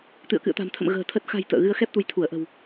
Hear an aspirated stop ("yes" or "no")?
yes